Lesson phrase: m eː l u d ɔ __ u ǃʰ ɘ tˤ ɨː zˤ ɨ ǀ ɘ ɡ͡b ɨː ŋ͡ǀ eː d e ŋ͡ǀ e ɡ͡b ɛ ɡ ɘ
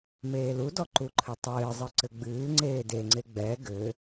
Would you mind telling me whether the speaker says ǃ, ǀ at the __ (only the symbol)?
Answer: ǃ